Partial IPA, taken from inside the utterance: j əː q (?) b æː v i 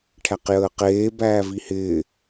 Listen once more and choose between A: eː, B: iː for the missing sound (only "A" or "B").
A